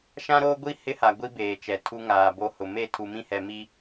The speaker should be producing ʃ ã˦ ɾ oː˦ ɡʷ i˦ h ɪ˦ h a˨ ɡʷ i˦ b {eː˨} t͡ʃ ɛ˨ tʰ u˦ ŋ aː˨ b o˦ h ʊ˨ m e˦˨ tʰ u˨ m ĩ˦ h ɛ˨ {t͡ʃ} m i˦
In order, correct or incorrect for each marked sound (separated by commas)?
correct, incorrect